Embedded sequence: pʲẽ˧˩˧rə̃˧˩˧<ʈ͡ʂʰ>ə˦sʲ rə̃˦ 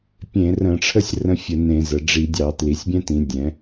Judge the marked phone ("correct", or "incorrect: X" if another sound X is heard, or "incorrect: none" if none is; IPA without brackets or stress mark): correct